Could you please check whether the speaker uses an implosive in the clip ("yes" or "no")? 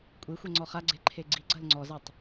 no